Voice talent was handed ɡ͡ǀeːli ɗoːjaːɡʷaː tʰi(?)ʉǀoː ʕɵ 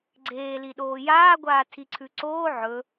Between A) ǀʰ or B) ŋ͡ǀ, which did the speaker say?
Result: A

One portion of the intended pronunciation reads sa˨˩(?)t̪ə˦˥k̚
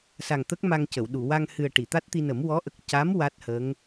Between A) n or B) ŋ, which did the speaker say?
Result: B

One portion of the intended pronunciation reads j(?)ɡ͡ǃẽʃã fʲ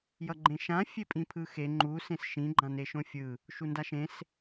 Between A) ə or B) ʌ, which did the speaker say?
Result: B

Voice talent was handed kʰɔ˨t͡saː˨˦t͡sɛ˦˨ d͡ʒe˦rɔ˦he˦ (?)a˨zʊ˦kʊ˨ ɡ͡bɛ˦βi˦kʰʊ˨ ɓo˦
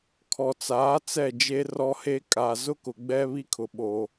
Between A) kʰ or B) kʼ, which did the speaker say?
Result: B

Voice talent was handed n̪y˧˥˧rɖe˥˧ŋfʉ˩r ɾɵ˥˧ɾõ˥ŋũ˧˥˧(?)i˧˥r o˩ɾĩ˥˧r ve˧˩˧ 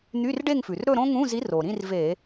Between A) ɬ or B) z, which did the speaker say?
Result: B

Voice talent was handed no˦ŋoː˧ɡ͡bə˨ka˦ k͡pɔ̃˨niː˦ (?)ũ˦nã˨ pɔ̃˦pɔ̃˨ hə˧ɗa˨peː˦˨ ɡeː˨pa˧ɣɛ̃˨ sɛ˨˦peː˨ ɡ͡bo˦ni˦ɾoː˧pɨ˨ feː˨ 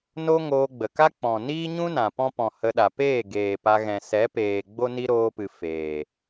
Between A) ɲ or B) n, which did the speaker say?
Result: A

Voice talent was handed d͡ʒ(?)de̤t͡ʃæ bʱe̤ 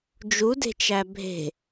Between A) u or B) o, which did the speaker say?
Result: A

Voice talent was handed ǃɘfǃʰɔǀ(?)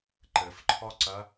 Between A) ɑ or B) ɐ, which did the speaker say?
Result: B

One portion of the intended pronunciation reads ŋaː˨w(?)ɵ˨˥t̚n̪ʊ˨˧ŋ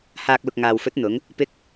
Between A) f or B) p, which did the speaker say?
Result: A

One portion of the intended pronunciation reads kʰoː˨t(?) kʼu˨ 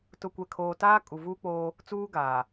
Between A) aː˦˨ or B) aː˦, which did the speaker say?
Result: B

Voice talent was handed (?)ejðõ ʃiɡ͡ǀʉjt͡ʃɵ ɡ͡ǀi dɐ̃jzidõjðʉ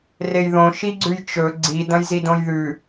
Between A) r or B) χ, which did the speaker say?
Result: A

